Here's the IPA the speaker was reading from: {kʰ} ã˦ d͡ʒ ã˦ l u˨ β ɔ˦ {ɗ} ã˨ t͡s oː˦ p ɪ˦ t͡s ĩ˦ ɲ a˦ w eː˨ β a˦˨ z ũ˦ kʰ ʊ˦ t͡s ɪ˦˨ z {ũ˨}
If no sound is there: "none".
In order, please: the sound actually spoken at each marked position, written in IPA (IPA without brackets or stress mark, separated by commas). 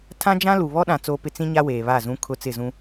tʰ, ɗ, ũ˦